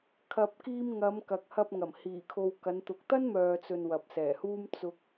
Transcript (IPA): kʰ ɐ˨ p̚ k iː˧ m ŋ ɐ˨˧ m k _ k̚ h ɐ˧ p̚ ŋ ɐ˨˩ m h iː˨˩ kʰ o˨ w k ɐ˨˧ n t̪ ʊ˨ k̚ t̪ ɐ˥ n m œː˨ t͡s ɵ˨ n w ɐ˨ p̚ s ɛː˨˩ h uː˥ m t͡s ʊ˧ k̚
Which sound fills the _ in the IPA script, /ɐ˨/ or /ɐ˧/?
ɐ˨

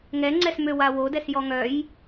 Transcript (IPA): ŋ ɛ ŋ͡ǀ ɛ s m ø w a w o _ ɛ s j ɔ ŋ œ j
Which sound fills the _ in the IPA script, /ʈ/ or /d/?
d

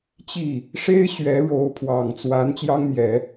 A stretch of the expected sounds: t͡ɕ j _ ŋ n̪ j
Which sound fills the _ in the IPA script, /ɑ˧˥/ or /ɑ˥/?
ɑ˥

